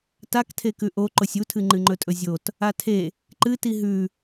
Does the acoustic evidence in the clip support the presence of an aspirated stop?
yes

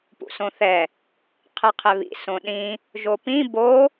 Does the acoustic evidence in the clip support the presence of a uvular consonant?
yes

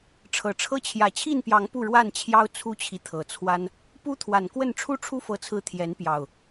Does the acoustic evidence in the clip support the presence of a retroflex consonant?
yes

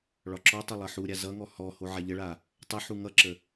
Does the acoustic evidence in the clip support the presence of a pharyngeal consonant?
yes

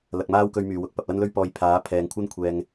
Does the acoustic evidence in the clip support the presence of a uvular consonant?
no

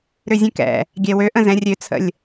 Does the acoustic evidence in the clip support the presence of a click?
no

